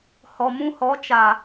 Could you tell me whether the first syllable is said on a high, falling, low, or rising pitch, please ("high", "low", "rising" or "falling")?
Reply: low